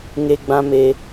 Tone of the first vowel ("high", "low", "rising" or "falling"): high